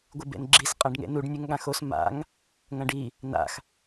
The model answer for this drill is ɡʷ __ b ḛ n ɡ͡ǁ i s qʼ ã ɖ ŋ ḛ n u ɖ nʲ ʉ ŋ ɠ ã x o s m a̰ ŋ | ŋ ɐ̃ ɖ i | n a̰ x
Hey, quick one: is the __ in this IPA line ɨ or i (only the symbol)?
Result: ɨ